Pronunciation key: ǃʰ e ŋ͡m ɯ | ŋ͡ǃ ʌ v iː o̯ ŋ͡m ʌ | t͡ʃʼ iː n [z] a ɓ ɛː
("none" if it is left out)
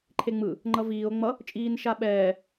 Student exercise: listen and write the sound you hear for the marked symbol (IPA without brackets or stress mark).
ʃ